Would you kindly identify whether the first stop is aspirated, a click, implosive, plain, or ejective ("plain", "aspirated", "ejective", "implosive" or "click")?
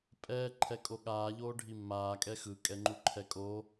ejective